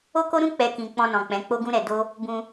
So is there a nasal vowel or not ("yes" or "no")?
yes